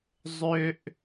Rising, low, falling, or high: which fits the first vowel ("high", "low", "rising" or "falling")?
high